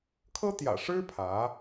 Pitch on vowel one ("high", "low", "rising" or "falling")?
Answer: high